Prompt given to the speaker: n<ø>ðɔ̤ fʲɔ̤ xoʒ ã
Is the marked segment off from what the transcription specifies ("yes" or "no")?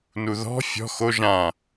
yes